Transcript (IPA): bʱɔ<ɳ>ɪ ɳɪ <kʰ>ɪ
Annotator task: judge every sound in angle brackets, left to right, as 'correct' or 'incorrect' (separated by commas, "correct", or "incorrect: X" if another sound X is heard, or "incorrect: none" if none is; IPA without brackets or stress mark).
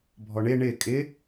correct, incorrect: kʼ